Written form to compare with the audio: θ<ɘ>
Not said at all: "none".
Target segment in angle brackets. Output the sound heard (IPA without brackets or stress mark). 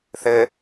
ɘ